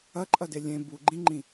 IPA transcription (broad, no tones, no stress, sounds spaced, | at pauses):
ɐ ǃʼ ɐ d e lʲ ẽ b u ɡ͡ǃ ĩ ŋ͡ǃ ĩ